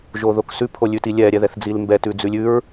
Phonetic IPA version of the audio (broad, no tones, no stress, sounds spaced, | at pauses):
ʒ o ð o k s ʉ pʰ o lʲ ʉ t i lʲ ɛ ɾʲ ɛ ð ɛ θ d͡z i l m b ɛ t ʉ d͡z ʉ lʲ ʉ ɹ